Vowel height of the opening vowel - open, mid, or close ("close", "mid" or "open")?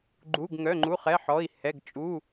close